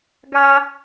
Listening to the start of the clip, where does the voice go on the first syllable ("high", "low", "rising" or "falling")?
high